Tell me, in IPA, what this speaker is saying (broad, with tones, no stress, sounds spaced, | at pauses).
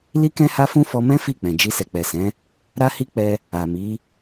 l i˦ k ɛ̃˦ h a˦ f ũ˦ f ɔ˧ m ɛ̃˦ f i˦˨ k͡p ɛ̃˨ d͡ʒ i˧ s ɛ˨ k͡p ɛ˨ s ɛ̃˨˦ | ɾ a˦ h i˦ k͡p ɛ˧ | a˨ m i˨˦